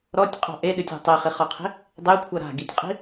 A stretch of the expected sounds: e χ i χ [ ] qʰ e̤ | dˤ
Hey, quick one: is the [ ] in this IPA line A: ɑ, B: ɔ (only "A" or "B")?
B